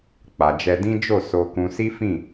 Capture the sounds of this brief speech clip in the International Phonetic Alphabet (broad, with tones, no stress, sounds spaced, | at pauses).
k͡p a˨ d͡ʒ ɛ˧ d ĩ˦ d͡ʒ o˦˨ s o˧ k ũ˧ s i˦ f ĩ˦˨